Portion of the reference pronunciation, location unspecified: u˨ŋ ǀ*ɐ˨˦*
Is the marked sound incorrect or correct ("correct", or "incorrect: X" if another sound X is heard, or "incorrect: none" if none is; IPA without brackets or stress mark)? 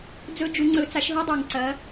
correct